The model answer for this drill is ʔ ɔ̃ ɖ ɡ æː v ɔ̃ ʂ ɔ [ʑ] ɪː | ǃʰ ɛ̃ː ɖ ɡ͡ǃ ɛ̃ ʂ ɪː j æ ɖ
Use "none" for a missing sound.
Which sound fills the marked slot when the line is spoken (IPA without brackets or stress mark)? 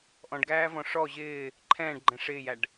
ʑ